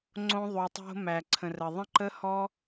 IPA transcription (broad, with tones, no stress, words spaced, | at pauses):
ŋ͡ǀõ˧ðˤu˨tˤo̤˧ mæ˨ǀʰə̃˨rə˨ ðˤə̃˦ǃə˦hɔ˦